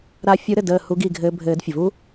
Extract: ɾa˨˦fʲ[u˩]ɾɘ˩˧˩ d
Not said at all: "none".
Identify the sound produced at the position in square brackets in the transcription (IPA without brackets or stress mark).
u˨˦